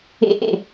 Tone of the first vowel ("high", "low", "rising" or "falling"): low